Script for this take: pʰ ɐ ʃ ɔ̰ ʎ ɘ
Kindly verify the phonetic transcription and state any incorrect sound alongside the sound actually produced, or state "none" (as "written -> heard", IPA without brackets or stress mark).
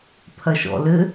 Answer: ʎ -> l